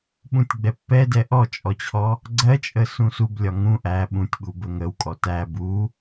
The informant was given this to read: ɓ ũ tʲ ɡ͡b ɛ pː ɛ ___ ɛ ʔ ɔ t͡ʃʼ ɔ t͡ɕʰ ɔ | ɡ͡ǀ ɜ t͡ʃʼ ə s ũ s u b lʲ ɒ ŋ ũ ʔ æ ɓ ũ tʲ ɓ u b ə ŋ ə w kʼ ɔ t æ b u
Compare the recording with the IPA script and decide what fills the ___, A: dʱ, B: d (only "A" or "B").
B